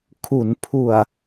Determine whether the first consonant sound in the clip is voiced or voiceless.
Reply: voiceless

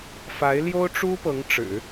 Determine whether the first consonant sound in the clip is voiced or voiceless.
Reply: voiceless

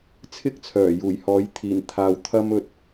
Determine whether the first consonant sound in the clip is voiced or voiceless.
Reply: voiceless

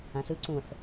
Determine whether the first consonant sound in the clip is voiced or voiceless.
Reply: voiceless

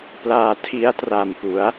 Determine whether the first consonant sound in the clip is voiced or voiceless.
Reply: voiceless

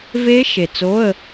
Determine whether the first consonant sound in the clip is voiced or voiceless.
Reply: voiced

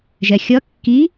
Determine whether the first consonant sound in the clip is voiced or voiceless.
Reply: voiced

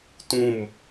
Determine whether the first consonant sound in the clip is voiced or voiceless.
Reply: voiceless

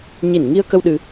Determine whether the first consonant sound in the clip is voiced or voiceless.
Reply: voiced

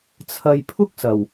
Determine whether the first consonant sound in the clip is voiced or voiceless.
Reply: voiceless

